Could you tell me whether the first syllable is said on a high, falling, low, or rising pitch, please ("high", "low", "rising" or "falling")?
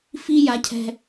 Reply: high